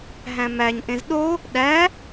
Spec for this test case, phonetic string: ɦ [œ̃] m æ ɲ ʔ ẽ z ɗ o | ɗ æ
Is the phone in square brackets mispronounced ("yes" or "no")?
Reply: yes